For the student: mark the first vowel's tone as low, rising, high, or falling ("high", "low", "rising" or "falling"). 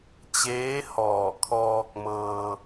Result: rising